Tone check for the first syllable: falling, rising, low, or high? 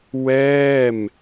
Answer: falling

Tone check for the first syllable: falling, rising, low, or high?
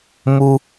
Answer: high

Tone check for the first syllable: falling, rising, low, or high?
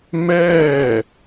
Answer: falling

